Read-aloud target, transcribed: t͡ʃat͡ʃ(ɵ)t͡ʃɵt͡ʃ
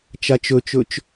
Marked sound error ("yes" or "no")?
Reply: no